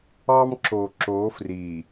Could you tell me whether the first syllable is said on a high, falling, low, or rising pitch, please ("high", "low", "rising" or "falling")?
high